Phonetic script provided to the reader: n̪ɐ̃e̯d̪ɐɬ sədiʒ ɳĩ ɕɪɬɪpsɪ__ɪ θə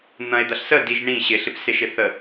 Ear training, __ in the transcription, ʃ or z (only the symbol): ʃ